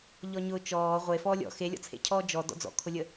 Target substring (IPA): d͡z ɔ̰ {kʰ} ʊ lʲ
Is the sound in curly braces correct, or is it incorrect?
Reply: correct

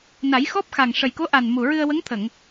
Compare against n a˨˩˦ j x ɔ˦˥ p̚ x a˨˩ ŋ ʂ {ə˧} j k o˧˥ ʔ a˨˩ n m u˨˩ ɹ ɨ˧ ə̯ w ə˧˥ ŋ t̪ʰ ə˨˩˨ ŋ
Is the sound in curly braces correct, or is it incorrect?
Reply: incorrect: ə˨˩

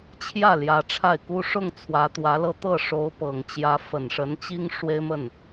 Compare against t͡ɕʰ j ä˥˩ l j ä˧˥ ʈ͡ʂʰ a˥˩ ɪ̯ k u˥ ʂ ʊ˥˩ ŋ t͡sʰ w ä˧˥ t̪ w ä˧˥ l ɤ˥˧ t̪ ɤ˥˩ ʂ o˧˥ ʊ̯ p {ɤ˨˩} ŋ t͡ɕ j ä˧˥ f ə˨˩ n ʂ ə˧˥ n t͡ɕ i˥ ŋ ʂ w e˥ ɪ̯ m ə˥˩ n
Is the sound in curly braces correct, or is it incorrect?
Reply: correct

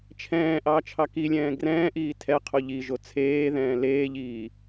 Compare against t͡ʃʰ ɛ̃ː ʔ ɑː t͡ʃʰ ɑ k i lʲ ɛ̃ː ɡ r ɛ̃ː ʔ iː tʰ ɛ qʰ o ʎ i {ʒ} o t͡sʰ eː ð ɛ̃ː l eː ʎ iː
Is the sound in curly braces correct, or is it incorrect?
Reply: correct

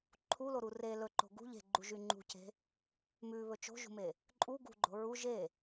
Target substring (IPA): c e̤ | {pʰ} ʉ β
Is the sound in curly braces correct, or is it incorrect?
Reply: incorrect: m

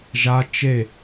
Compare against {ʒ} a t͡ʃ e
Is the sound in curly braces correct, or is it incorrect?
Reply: correct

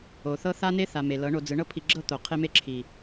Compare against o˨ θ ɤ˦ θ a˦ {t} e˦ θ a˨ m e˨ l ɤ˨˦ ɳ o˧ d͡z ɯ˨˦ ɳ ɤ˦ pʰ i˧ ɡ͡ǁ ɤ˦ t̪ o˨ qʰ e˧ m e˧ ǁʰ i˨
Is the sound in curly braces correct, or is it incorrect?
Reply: incorrect: n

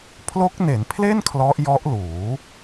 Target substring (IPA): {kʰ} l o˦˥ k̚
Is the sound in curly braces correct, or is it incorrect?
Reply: incorrect: pʰ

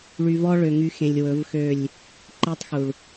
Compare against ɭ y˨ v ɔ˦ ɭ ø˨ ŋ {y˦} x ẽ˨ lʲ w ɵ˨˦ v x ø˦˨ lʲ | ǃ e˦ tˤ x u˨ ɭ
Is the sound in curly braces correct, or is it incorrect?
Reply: incorrect: y˨˦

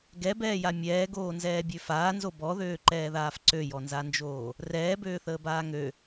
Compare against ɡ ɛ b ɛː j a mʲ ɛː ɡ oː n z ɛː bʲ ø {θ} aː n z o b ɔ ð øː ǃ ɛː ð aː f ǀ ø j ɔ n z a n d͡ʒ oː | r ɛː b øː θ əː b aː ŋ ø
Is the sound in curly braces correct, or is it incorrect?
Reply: incorrect: f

